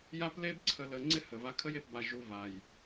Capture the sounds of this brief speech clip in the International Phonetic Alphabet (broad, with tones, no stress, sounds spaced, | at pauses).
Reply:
j a˦ p l e˦ b ǀʰ ə˨ l ə˨ ŋ͡ǀ ɪ˦ h ə˨ v a˦ kʰ ə˦ j e˨ p b a˨ ʒ u˨ v a˨ j